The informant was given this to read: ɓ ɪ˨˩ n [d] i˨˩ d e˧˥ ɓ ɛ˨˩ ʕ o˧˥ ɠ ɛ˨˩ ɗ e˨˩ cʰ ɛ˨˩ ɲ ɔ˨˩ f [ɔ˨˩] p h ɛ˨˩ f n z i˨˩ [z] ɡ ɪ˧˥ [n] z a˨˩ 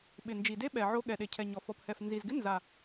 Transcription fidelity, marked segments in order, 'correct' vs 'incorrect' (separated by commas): incorrect, correct, correct, correct